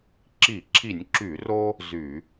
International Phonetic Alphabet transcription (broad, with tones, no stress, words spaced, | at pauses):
ǁi˧˩˧ǁʰi˧˩˧nʲǁy˧˩˧ro˦ | zy˧˩˧